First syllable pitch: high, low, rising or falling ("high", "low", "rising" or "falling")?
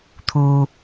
low